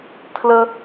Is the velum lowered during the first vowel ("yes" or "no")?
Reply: no